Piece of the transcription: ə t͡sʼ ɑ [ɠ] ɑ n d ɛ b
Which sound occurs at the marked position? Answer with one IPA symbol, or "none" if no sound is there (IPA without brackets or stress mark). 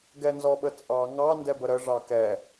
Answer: ŋ